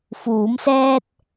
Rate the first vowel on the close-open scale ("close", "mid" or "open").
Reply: close